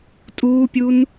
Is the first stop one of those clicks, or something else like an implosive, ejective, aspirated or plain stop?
ejective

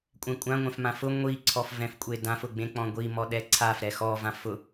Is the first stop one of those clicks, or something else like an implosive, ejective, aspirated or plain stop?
ejective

